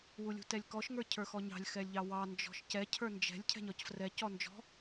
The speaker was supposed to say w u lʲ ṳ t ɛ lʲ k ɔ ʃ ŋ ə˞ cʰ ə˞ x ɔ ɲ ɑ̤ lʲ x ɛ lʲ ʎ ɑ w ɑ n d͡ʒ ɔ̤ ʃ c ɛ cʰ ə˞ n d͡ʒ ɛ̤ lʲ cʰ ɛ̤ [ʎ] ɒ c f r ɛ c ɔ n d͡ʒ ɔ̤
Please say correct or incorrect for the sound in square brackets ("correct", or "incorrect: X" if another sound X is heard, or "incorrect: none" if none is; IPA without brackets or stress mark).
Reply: incorrect: ɲ